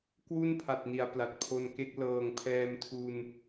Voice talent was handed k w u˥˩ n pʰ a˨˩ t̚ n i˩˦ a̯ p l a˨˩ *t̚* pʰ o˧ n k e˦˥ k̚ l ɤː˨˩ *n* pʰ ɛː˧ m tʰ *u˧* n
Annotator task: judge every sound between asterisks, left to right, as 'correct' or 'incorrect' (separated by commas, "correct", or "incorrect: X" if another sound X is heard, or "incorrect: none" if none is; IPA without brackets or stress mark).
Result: correct, incorrect: ŋ, correct